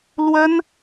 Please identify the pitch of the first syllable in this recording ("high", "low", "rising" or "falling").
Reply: high